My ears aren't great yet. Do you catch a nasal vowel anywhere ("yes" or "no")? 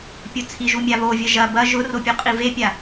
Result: no